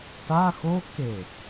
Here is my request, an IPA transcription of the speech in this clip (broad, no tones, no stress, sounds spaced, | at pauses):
t a x o k e